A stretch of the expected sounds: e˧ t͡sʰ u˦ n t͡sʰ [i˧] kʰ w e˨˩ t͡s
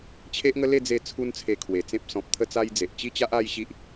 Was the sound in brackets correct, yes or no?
no